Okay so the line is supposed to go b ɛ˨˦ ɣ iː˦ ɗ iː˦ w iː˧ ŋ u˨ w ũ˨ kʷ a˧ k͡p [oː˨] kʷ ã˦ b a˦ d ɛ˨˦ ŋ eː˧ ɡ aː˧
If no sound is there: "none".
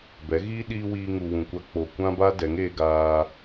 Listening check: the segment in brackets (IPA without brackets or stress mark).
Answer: o˨